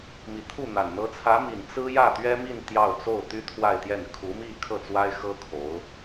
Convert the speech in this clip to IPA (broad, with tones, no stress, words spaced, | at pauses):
mi˨˩t̪ʰu˥˩n̪a˨˩n n̪ɤ˧˥t͡sʰä˧˥mi˨˩n t͡sɹ̩˥jä˥˩ t̪ɥɛ˥mi˥˧n t̪jɑ˥˧ʊ̯ t͡so˥˩ʊ̯t̪y˥ t̪ʰwa˥˧ɪ̯t̪jɛ˥˩n kʰu˧˥mi˥˧ kʰɤ˥˩t͡swa˥ɪ̯xɤ˥ kʰo˧˥ʊ̯